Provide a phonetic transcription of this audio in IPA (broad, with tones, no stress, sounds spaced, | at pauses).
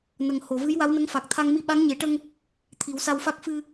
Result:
n ə˨˩ ŋ h o˨˩˨ v ɨ˧˥ j w a˧˥ w n ə˧˥ ŋ f a˨˩ k̚ t̪ʰ a˧ ŋ m i˧ ɓ a˧˥ ŋ ɲ e˨˩˦ ʈ ə˧ ŋ | t̪ʰ i˨˩˦ w s a˧ w f a˦˥ k̚ f ɨ˧